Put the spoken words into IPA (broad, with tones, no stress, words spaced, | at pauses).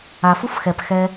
a˨fu˥fxɛ˨pxɛ˦